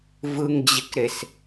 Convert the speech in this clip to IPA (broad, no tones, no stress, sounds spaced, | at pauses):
v ɯ ŋ d͡ʑ ɪ k ɾ e s